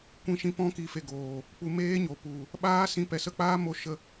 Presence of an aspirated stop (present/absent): absent